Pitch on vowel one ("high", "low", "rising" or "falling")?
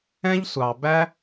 high